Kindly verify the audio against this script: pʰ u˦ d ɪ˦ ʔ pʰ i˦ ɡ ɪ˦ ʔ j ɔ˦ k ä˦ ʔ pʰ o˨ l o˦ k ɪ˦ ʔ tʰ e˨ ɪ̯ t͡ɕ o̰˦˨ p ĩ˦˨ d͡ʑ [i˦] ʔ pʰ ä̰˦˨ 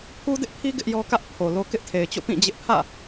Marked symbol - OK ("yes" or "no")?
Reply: no